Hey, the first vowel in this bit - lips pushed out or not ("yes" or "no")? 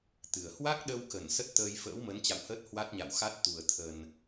no